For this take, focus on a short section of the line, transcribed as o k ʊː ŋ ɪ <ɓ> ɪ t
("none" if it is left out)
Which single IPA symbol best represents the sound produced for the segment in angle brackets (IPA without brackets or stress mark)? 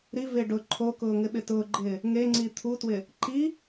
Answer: ɓ